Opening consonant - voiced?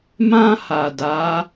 yes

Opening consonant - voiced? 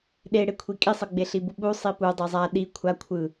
yes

